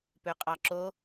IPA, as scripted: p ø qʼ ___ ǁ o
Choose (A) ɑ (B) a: A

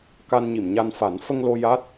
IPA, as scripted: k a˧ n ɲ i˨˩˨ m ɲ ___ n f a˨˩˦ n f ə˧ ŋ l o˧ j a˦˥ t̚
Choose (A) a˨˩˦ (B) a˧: B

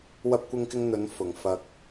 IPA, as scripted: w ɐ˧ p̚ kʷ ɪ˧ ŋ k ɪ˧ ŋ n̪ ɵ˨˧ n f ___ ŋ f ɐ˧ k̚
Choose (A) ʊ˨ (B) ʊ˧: A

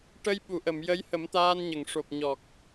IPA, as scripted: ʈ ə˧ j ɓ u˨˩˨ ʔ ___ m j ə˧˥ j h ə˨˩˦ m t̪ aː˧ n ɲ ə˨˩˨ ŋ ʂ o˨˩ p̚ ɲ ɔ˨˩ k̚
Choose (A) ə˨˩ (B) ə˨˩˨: B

